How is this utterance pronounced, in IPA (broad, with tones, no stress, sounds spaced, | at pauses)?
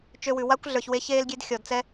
t͡ʃ ø˧ w ʉ˨ w a˦ kʷ ɮ ə˞˨ ç w e˧ ç eː˧ l ɡʲ e˧ d xʲ ɔ˨ d t͡s ɛ˦